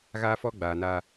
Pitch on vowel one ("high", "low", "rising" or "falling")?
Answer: high